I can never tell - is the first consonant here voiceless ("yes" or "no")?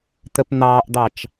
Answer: yes